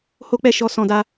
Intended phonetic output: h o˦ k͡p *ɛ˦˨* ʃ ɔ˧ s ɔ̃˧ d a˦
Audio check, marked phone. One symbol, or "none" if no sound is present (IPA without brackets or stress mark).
ɛ˦˨